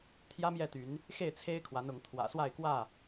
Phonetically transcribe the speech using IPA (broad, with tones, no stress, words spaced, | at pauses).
t̪ʰjä˦mjɛ˥˨t̪y˨˦n | xe˥˨ɪ̯t͡sʰe˦ɪ̯kʰwa˨˦nʊ˨˦ŋ t̪ʰwä̰˨˩swa˥˨ɪ̯kwä˥˨